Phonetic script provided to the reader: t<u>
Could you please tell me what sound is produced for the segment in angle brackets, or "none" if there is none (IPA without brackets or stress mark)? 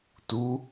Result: u